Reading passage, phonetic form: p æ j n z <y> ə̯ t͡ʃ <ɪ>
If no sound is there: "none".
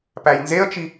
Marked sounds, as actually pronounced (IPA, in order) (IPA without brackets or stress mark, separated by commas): e, i